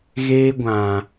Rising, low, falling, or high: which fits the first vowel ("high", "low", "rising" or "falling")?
high